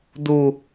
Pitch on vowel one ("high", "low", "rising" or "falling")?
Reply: low